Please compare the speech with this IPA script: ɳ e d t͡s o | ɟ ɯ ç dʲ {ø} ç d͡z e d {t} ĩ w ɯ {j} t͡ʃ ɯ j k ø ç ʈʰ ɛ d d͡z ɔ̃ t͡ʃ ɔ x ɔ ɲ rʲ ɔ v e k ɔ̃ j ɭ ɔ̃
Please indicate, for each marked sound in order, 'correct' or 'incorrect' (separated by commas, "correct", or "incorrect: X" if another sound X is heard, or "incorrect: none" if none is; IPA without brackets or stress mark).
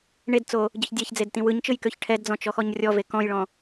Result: incorrect: ɛ, correct, incorrect: ɲ